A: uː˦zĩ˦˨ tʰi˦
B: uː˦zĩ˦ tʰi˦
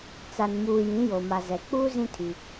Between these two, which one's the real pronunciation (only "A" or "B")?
B